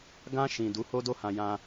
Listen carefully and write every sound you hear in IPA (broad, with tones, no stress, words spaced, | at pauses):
ɡã˧ʃĩ˨ du˨˦ho˦do˦ hã˧jã˧